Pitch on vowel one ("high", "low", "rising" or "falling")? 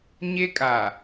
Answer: high